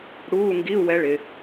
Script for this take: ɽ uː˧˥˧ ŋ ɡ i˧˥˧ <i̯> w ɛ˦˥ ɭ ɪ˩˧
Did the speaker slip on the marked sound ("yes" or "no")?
yes